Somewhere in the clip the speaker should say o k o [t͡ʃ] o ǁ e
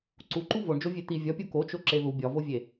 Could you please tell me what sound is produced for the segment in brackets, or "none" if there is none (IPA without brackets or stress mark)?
t͡ʃ